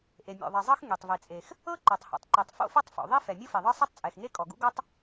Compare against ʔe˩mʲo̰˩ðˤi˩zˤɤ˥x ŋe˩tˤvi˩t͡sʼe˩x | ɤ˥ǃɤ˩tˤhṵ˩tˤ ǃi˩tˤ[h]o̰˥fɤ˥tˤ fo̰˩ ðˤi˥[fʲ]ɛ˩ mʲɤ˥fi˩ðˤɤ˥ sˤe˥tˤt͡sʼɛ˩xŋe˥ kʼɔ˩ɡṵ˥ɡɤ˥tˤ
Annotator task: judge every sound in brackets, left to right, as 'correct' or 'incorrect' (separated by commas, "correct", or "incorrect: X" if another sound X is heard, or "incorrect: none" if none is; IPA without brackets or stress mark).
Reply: incorrect: f, incorrect: f